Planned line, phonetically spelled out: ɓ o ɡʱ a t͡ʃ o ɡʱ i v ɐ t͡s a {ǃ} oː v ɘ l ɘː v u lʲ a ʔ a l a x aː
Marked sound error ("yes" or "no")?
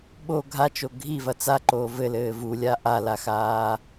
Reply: no